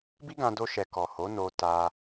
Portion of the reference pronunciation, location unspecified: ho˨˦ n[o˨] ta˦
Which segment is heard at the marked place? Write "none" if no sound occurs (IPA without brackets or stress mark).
o˧